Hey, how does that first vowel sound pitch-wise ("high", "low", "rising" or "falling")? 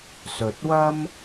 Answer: low